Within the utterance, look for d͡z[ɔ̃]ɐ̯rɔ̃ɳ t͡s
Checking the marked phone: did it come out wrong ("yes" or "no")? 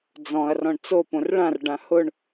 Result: no